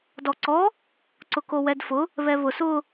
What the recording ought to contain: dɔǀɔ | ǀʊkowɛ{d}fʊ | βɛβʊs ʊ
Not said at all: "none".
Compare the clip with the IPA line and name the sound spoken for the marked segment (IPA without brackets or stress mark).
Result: d